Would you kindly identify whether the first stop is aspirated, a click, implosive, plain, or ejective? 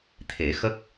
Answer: aspirated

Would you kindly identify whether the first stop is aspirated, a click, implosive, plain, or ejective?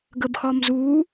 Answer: plain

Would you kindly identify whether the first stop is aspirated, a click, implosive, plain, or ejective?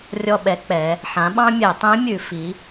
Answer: implosive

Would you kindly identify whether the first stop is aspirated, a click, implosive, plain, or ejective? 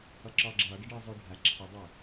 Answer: click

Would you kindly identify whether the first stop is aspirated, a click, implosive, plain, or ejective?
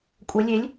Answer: ejective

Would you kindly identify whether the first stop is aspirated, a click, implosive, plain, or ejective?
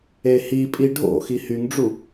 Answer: ejective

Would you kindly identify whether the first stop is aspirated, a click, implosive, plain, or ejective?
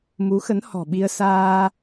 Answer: implosive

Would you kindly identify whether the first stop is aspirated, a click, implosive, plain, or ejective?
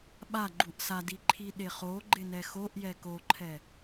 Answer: implosive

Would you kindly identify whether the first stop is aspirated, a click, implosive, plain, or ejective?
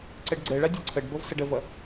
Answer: click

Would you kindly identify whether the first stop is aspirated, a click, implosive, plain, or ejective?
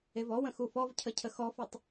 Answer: aspirated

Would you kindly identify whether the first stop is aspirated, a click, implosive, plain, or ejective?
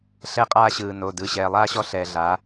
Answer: ejective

